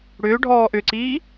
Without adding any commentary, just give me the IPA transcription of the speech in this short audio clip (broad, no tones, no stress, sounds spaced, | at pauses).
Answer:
ɽ ʏː ɖʱ ɔː ʔ ʏ ǀ iː